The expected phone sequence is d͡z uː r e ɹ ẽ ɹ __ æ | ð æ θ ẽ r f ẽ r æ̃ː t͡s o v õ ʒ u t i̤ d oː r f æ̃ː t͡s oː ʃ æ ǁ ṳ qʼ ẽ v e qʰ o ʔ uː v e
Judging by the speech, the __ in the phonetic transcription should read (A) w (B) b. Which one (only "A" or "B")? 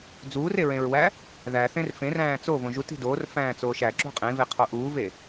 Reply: A